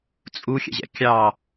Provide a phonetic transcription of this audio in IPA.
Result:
t͡sʼ u xʲ ɛ̰ ʑ ɛ̰ kʲ ɑ

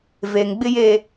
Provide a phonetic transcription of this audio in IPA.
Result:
v e˨ ŋ ɡ͡b ɪ˦ j e˦

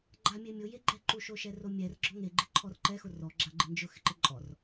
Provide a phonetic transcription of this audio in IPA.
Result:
ɡ͡ǃ a mʲ e mʲ ʊ j e ɡ͡ǃ ɛ ǃ u ʃ o ʃ ɛ r o mʲ ɛ r ɡ͡ǁ ɔ ŋ e ɡ͡ǃ ɪ ǃʰ ɔ r ǃ ɛ x ʊ r ɔ ɡ͡ǁ a ɡ͡ǃ ɪ n d͡ʒ ʊ x ɪ ǃ ɪ ǃʼ ɔ r

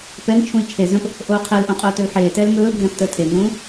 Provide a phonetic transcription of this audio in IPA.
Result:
p ɛ ŋ t͡ʃʰ ũ i̯ t͡ʃʰ e z ə̃ p | ʔ oː qʰ əː l ʔ õ qʼ oː t ɵ l ħ eː t ɛː l ŋ ɵː bʱ ɛ̃ p t əː tʰ e ŋ ũː

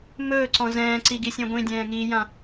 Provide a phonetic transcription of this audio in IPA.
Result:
m ɵː ǀ ɔ̃ z ɛ̃ː ǀ i ɡ i sʲ ẽ ɡʷ ĩ dʲ ɛ̃ː ŋ i j ã

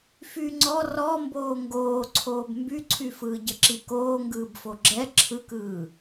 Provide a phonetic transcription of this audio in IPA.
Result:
f yː ŋ͡ǀ ɔ r ɔ m b oː ŋ ɡ oː ǀʰ oː b m b y ǀʰ y f ɯː ɟ ə ǁ i k oː ŋ ɡ ɯː b f o ɡ͡ǁ ɛ ǁʰ ɯ k ɯː

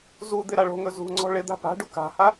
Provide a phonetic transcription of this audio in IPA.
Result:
z u d̪ ɪ ɾ a ɭ o̤ ŋ ɵ z ṳ ŋ͡ǀ ɔ̤ ɭ ɪ d̪ a̤ p a̤ ɖ u k a̤ h a

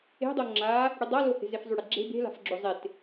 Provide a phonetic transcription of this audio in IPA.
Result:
e̤ dˤ o ŋ͡ǁ a | ɽ y dˤ a l o h e̤ z e f zˤ y ɽ e ɡ͡ǁ e̤ b e̤ l a̤ f ɡ͡ǁ o zˤ e t

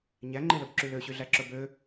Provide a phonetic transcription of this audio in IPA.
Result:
ɲ æ ŋ͡ǃ i l ɵ b ǁ y l ø ɕ y ɮ æ ǁ ɵ b ø

